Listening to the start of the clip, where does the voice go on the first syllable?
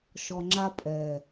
low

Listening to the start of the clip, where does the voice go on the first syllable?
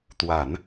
low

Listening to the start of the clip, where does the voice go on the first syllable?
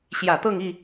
low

